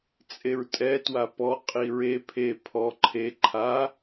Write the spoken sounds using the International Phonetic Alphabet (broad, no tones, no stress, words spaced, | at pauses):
t͡sʼeɹtʼɛ twapɔ qʼiɹe pʰe pʰɔ ǃʰe ǃʰa